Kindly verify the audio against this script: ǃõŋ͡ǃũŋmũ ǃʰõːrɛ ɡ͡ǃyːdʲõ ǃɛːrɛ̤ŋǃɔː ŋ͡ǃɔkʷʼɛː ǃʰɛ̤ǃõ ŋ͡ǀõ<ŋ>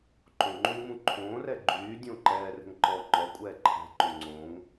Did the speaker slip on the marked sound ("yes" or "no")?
no